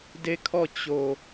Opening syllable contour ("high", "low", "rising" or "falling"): falling